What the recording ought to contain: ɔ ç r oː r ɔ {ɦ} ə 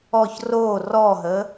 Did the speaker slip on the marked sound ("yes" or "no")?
no